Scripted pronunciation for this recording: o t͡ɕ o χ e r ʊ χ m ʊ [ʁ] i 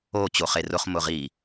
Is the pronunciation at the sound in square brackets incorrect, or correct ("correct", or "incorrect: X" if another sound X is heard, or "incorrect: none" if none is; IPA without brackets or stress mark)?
correct